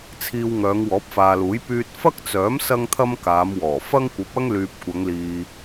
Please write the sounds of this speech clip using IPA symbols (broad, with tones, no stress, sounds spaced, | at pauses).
t͡sʰ iː˧ w ŋ œː˨˧ ŋ w ɔː˨˥ p̚ f aː˨ l uː˨˥ j p yː˧ t̚ f ɐ˥ k̚ t͡s œː˨˥ m s ɐ˥ ŋ t̪ʰ ɐ˥ m k aː˨˧ m w ɔː˨˩ f ɐ˥ ŋ kʷ ɐ˨˥ p̚ ɐ˥ ŋ l yː˨ p̚ kʷ ɐ˨˧ ŋ l iː˨